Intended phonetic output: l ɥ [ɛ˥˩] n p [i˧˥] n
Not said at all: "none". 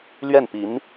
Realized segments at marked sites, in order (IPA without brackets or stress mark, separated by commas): ɛ˥˩, i˧˥